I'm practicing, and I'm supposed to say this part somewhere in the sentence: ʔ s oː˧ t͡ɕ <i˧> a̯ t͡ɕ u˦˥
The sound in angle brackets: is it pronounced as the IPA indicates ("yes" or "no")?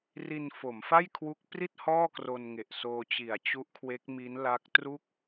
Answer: no